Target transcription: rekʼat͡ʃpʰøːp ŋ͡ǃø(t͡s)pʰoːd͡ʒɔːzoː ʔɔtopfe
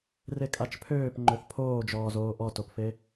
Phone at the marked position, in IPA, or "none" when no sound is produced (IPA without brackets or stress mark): θ